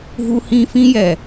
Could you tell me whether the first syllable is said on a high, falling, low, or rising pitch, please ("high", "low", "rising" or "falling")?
high